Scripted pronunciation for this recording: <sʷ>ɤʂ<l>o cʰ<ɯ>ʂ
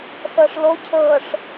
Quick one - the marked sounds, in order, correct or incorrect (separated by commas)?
incorrect, correct, incorrect